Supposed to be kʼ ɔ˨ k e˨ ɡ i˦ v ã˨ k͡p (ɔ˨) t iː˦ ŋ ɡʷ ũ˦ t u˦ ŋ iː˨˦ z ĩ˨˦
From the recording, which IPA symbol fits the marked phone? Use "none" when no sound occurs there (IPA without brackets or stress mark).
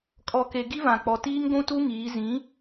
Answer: ɔ˨